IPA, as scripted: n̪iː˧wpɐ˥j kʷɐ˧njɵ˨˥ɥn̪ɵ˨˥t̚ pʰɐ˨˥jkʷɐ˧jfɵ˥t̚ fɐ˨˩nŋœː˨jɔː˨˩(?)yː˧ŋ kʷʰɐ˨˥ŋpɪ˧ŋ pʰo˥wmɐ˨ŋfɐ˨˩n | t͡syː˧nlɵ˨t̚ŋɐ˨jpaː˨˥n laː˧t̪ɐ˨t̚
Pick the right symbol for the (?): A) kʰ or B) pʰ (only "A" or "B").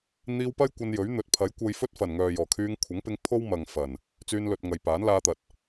A